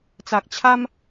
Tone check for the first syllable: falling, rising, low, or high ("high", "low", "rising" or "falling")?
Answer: low